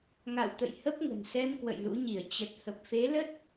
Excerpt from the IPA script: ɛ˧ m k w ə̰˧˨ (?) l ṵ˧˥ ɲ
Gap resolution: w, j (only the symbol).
j